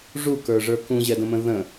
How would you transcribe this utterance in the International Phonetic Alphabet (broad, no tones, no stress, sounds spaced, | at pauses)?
ʐ u k ə˞ ʐ ə˞ k ũ ʑ ɛ d ə̃ m ə̃ ð ə̃